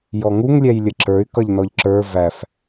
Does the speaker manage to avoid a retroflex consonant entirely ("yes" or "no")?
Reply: yes